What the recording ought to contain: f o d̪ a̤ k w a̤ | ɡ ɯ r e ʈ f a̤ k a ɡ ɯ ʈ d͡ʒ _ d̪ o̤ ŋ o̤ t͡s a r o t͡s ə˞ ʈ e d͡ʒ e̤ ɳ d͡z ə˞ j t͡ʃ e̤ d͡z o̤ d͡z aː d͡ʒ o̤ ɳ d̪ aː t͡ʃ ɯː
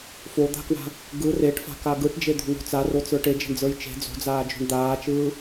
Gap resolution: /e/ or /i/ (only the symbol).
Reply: e